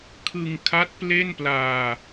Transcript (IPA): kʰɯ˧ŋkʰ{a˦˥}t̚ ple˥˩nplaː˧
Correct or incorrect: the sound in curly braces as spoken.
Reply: correct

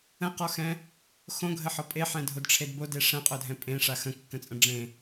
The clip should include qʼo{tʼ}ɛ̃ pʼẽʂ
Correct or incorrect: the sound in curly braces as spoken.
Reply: incorrect: dʱ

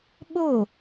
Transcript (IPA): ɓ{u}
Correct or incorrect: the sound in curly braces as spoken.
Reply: incorrect: o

